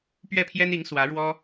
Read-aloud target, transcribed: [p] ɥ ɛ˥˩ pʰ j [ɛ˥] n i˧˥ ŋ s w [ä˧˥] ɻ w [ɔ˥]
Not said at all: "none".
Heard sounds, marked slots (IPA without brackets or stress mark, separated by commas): p, ɛ˥, ä˧˥, ɔ˥